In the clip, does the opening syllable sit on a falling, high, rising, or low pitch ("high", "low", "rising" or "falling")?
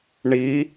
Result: rising